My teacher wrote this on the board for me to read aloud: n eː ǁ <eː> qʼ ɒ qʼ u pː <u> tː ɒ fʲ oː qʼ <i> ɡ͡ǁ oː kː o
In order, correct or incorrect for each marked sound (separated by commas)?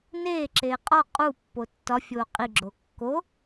correct, incorrect, correct